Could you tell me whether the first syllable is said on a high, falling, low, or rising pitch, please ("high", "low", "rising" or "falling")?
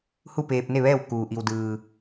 falling